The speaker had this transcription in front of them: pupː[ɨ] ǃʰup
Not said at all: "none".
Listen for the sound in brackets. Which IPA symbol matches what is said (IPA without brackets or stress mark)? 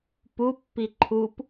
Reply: i